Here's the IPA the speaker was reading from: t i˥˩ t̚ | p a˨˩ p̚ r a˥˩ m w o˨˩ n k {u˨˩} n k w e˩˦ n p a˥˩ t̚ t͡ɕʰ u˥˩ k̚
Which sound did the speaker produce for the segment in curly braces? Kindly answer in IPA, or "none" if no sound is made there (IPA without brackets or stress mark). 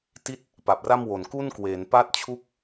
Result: u˥˩